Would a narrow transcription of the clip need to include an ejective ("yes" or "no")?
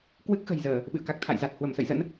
no